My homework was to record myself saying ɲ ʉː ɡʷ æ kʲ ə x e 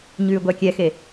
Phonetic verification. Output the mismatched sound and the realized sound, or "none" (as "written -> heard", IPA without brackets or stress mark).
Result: ə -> ɛ